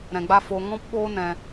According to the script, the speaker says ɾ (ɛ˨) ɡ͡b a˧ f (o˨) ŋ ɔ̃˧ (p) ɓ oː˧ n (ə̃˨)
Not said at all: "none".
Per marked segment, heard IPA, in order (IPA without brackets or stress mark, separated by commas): ɛ̃˨, o˨, p, ɛ̃˨